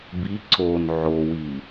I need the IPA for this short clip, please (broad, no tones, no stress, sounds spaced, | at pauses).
b i ǀ o n ʕ o w i